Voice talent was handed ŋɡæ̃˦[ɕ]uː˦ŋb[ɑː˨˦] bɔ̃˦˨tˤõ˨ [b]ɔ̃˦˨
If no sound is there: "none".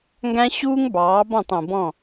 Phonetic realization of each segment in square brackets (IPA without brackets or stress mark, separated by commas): ɕ, ɑː˨˦, b